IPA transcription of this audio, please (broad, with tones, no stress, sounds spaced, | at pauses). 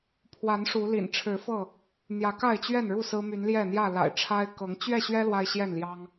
pʰ w a˨˦ n ʂ u˨˦ l ḭ˨˩ n ʈ͡ʂʰ ɻ̩˨˦ f ɤ˥˨ | n̪ j ä˨˦ k a˥˨ ɪ̯ t͡ɕ ɥ ɛ˥˨ n ɻ u˥˨ s ɹ̩˦ m y˨˦ n l j ɛ˥˨ n̪ j ä˥˨ l a̰˨˩ ɪ̯ ʈ͡ʂʰ a˦ ɪ̯ k ɤ˨˦ ŋ t͡ɕ ɥ ɛ˥˨ ɕ ɥ ɛ˦ l w a˦ ɪ̯ ɕ j ɛ˥˨ n l j ɑ˦ ŋ